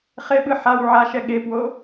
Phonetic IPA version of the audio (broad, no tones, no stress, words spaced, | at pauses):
χeɓɯ ħaw ʕaʃɛ ɠepwo